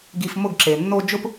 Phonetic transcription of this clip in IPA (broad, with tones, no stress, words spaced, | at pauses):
ɡi˧fmʊ˦˨ɡ ǁe˨nːo˦ d͡ʒʊ˦p